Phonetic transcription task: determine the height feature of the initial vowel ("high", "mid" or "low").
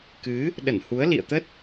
high